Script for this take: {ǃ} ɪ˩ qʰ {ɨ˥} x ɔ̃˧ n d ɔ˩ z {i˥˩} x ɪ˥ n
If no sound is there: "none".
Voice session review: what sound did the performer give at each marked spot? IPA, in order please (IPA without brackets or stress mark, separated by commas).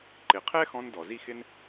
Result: ǃ, ɛ˥, i˥˩